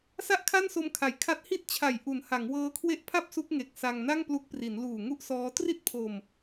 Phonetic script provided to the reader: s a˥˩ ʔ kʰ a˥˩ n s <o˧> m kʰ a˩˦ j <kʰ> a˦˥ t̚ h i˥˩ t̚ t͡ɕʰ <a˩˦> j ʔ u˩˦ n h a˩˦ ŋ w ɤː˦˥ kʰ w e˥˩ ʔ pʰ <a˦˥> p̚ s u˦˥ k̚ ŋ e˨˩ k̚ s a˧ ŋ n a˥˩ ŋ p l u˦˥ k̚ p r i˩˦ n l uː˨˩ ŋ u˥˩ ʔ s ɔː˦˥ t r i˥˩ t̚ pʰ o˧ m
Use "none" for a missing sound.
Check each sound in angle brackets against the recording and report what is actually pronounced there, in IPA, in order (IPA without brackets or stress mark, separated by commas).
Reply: o˧, kʰ, a˨˩, a˥˩